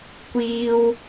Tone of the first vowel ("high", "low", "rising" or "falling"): high